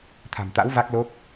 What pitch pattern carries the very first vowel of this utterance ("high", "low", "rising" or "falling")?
low